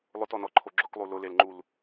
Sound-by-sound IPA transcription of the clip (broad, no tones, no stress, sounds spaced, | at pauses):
lˠ ʊ t ɔ n ɔ ǃʰ o ɡ͡ǁ ʊ k lˠ u l ʊ l e l ŋ͡ǃ u l